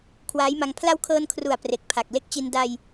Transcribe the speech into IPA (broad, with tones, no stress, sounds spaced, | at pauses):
kʰ w aː˦˥ j m a˧ ŋ pʰ l a˦˥ w kʰ ɤː˧ n kʰ r u˨˩ a̯ p r e˨˩ k̚ pʰ a˨˩ k̚ l e˦˥ k̚ t͡ɕ i˧ n d a˧ j